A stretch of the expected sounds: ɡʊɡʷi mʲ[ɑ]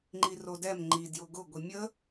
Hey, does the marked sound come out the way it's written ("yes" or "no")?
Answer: no